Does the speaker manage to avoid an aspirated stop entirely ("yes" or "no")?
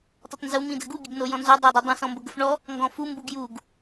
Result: yes